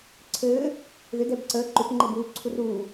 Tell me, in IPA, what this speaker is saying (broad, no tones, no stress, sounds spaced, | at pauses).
ǀʰ ɘː | ð ʏ d ɛ b ǀ əː ǃ ʏ p ŋ͡ǃ e b uː ǀʰ u r uː